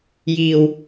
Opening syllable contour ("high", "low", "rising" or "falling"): low